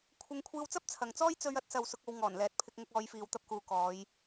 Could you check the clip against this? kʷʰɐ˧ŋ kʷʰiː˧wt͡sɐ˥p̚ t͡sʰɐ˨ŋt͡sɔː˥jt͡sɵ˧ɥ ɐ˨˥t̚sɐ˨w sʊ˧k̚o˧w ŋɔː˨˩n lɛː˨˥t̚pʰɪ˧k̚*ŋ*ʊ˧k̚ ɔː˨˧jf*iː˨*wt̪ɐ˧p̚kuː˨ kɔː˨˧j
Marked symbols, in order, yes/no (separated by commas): yes, yes